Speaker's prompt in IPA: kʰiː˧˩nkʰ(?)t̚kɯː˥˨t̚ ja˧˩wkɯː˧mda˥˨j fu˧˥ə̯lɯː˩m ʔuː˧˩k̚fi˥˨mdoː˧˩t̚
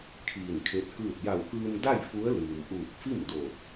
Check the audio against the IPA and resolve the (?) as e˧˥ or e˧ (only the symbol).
e˧˥